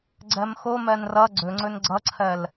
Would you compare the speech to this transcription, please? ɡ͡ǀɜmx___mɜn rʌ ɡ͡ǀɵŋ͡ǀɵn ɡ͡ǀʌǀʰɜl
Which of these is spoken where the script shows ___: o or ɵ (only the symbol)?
o